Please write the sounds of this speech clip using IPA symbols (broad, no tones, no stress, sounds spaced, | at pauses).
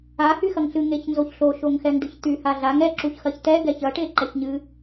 a h y x ɐ ŋ ɬ ɨ ŋ e ç n z o ç ɬ o ʃ o ŋ x ɛ ŋ d ɨ ç t̪ y h a ɮ a ŋ ɛ ǁ u ç x ɐ ç t̪ ɛ ɡ ɛ ç ɐ ʈ e ǃ ɛ ç ɲ ɨ